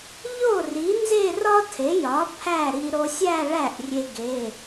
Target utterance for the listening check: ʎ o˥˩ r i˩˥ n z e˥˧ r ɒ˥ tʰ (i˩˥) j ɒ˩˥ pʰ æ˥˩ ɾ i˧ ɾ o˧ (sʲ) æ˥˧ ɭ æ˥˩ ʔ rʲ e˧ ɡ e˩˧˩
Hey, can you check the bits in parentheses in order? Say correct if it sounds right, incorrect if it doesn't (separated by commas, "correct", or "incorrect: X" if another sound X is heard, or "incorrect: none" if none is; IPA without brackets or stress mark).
incorrect: e˩˥, correct